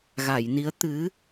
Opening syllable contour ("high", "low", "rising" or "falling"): low